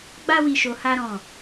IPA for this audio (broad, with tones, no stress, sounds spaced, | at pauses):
ɡ͡b a˦ w i˧ ʃ o˧ h a˦ ɾ ɔ̃˦˨